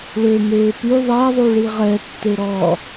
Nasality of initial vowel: oral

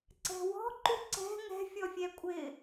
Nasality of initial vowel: oral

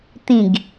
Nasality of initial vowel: nasal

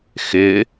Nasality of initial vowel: oral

